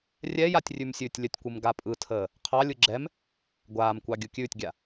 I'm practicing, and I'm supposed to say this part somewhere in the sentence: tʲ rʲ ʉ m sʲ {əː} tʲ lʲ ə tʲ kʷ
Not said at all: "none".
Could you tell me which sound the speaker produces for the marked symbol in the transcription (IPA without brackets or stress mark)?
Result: ʉː